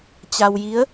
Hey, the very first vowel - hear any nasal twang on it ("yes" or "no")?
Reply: no